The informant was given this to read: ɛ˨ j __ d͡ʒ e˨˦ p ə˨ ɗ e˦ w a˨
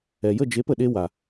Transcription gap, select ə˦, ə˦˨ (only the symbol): ə˦˨